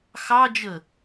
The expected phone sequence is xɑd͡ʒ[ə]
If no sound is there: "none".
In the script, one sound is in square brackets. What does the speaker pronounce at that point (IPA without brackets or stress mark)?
ə